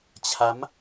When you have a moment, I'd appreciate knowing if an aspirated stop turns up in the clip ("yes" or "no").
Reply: yes